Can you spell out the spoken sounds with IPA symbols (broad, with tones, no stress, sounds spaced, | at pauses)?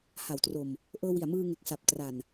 h a˩˦ w t r o˨˩ m | ʔ ɤː˧ w i˨˩ a̯ m ɯː˧ ŋ e˨˩ k̚ s a˨˩ p̚ t r a˨˩ n